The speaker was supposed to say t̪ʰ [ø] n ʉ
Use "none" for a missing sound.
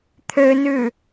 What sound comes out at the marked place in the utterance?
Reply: ø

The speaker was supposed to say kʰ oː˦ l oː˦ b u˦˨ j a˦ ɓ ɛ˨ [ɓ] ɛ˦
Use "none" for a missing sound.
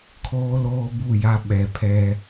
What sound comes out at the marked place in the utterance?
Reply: pʰ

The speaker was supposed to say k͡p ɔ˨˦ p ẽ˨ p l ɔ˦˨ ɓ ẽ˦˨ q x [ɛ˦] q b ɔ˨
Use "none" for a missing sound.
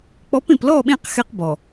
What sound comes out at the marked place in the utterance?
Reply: ɛ˦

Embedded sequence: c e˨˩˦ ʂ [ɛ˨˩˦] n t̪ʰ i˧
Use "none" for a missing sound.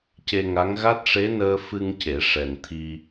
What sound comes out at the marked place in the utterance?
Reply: ɛ˨˩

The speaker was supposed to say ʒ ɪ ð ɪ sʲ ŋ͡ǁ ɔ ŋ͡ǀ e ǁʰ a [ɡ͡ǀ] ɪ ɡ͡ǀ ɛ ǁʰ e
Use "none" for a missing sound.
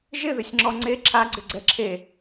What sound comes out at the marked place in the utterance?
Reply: ɡ͡ǀ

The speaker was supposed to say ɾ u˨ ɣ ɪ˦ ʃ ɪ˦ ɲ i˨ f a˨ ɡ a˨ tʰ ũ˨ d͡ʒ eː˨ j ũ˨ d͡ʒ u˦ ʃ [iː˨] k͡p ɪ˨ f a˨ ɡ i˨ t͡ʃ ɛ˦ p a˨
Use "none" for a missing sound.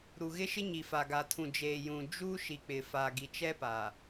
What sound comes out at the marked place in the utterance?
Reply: i˨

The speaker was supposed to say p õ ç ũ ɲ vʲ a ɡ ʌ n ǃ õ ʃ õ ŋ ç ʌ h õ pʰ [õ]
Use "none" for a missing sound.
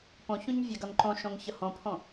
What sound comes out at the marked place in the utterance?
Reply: õ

